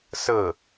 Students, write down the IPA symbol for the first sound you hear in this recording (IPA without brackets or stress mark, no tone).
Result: s